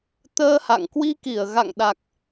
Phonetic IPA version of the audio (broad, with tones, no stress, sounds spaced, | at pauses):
t̪ əː˧ h a̰˧˨ ŋ k w i˧ k i˧˩ ə̯ ɣ a̰˧˨ ŋ ɗ a˨˩ k̚